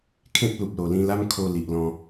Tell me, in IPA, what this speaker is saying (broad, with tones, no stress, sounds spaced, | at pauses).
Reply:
kʰ ẽ˦ p̚ l u˨ p̚ l o˨˩ l ĩ˧ l a˦ m kʰ o˧ l i˨ ʔ l ɔ̃˧